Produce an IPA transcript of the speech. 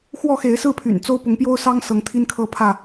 x w ɔ˥˨ x e˨˦ ɪ̯ s ɹ̩˥˨ pʰ y̰˨˩ n t͡s o˦ ʊ̯ p ʊ˨˦ ŋ p j o˦ ʊ̯ s ɑ˦ ŋ s ɤ˨˦ ŋ t̪ʰ i˦ n kʰ ɤ˦ pʰ ä˥˨

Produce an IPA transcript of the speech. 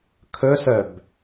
kʰ ɵ s œ b

